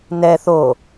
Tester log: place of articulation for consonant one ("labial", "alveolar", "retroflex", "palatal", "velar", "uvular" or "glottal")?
alveolar